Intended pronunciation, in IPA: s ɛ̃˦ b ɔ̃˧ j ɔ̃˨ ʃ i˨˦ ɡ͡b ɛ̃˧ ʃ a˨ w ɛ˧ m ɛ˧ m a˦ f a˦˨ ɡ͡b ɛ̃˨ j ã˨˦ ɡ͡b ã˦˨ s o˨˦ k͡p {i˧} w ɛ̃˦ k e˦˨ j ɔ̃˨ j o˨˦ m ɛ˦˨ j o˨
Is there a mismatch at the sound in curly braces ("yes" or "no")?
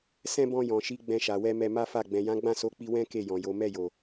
no